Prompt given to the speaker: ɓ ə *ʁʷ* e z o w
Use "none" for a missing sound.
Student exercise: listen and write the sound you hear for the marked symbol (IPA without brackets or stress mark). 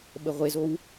ʁʷ